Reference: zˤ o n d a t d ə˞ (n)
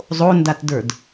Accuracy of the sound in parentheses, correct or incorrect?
incorrect